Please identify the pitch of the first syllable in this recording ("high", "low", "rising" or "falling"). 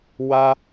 high